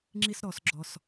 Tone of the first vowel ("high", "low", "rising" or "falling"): high